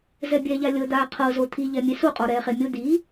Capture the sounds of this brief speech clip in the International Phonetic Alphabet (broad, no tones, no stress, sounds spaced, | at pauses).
z ɛ bʲ ɛː ʎ a lʲ ɤ d̪ aː qʰ ɤ z o t̪ʰ i ʎ ɛ mʲ e s u qʼ ɔ ɾ ɛː χ e mʲ o d̪ iː